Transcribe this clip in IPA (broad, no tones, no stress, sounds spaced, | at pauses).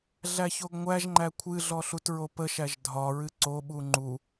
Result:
ɮ æ ç o ɡ ŋʷ æ ʒ ŋ͡ǃ æ kʷʰ ɨ ɮ ɔ ɬ u t ɹ o p ə ʃ æ ʒ dʱ ɒ ɹ ɨ ǀ o ɓ u ŋ͡ǃ u